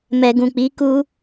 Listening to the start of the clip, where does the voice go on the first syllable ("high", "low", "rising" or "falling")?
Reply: low